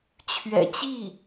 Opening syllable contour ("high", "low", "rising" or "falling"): low